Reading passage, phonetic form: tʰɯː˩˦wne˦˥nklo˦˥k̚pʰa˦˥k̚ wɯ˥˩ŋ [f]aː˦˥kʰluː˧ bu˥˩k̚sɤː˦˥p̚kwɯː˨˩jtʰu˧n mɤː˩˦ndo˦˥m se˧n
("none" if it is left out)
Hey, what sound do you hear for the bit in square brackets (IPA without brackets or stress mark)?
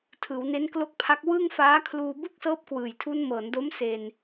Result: f